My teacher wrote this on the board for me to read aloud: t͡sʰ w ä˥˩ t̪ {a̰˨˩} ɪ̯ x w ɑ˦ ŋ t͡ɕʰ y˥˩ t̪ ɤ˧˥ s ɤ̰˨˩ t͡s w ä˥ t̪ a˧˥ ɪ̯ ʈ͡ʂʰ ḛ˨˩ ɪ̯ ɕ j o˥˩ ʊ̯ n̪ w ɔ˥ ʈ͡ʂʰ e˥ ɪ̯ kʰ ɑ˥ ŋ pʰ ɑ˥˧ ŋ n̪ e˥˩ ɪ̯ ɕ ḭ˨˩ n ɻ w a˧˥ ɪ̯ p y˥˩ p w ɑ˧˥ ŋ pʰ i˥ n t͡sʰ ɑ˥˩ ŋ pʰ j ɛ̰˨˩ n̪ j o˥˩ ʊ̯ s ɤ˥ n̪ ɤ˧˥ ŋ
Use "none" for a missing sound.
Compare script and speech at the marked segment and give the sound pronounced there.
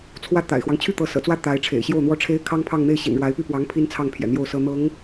a̰˨˩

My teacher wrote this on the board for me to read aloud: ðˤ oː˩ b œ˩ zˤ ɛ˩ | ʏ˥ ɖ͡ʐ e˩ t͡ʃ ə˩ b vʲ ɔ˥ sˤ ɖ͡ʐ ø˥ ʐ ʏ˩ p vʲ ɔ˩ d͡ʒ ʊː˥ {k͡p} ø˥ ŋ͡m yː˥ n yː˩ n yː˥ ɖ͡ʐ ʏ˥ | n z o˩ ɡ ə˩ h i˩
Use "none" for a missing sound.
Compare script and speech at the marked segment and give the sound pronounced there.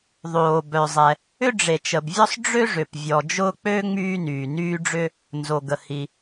k͡p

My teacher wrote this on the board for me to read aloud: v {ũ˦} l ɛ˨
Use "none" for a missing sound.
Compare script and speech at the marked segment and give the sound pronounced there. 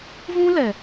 ũ˦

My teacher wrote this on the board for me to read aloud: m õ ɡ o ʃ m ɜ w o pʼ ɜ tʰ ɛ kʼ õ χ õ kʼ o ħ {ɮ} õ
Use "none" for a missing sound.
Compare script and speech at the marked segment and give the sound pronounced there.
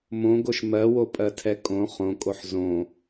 z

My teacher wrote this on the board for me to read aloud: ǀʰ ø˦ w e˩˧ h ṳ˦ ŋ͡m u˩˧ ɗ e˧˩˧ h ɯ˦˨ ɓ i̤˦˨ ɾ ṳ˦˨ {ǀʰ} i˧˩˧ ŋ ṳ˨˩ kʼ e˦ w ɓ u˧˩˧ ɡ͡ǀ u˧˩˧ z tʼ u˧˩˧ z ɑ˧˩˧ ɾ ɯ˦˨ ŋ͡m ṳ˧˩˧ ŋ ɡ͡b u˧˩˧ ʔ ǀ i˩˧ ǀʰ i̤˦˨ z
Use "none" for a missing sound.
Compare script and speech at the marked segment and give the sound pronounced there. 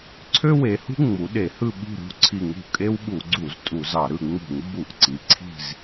ǀʰ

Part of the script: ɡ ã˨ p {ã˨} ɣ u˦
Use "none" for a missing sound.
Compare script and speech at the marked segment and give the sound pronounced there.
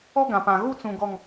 ã˨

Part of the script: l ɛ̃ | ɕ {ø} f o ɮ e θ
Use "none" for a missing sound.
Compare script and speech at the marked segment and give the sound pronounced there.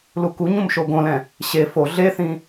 e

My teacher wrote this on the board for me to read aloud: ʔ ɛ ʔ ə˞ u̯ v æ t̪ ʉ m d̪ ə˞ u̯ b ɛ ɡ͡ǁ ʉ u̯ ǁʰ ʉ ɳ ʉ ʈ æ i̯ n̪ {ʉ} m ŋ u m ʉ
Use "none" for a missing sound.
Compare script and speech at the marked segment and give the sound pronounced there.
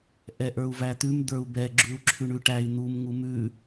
u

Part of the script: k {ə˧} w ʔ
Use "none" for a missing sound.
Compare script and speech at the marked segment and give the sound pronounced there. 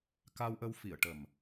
a˧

